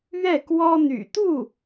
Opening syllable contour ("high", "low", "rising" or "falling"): falling